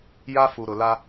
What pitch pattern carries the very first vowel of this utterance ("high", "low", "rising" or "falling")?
high